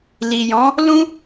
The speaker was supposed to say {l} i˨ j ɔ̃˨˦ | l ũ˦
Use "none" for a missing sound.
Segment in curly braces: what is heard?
l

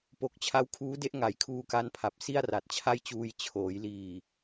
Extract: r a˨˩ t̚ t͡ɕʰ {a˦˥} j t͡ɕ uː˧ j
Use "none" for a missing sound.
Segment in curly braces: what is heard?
a˥˩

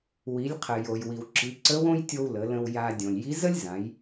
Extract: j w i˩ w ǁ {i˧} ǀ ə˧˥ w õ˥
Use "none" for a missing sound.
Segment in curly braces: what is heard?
i˩˧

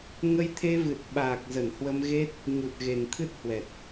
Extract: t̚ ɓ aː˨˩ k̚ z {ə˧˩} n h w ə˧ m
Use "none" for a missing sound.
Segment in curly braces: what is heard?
ə˧˩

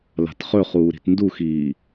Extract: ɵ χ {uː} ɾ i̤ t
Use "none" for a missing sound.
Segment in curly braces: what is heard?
uː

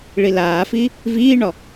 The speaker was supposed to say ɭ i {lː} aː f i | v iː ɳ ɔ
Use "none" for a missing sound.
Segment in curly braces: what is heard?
l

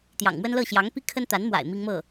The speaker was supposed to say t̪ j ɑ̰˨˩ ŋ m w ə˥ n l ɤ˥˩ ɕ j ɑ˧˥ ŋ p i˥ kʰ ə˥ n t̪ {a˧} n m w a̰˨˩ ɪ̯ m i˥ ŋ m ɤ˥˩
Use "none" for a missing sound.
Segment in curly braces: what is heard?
a˧˥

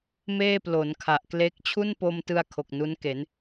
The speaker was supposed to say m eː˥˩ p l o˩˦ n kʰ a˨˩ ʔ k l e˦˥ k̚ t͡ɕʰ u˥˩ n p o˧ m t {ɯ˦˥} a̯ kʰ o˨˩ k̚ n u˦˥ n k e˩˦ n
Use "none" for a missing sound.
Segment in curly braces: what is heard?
ɯ˧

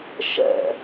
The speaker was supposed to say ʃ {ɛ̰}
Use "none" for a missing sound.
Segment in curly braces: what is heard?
ɛ̰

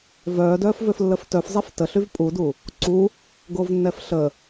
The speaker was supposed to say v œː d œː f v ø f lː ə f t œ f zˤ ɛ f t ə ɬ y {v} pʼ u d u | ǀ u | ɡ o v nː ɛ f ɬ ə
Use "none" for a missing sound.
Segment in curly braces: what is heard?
v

